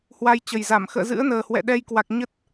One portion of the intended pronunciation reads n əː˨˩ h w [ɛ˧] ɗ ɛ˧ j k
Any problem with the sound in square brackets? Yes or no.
yes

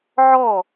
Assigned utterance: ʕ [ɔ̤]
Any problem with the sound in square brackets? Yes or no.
yes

